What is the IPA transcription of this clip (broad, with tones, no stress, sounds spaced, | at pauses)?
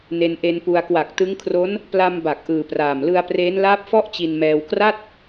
n e˧ n ʔ e˧ n p u˧ a̯ k w a˨˩ k̚ t ɯ˦˥ ŋ kʰ r o˦˥ n | p l a˧ m b a˨˩ k̚ ʔ ɯː˨˩ p r aː˨˩ m l ɯ˧ a̯ p r eː˦˥ n l aː˦˥ p̚ f ɔ˥˩ ʔ t͡ɕ i˧ n m ɛː˧ w k r a˥˩ t̚